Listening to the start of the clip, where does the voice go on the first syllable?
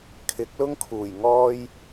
rising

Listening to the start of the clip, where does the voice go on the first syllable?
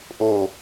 falling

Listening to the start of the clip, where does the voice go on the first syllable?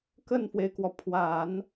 falling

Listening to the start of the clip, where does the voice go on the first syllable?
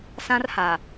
high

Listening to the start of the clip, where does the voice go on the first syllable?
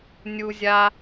high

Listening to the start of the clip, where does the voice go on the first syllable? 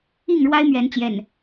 falling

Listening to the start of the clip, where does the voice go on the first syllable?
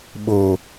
low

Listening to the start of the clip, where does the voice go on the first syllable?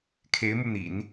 rising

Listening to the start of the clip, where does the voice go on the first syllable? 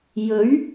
rising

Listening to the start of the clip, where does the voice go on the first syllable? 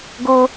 high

